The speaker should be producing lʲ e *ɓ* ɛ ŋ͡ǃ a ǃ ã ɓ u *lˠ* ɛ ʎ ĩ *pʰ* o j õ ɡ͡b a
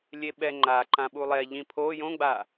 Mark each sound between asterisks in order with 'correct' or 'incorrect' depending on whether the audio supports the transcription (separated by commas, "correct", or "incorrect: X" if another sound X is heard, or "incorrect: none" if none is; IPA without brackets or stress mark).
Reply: correct, correct, correct